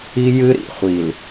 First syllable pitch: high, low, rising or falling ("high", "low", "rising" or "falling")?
high